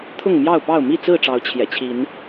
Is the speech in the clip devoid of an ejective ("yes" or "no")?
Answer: yes